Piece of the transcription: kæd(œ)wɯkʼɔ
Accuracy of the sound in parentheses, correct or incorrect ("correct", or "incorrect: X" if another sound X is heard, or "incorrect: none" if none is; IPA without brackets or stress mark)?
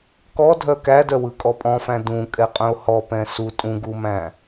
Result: correct